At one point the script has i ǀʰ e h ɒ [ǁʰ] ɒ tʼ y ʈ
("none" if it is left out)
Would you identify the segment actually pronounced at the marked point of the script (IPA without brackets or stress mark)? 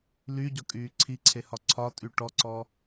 ǀʰ